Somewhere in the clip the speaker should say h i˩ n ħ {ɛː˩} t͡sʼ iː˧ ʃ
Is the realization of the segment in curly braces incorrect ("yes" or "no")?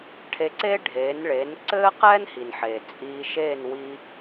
yes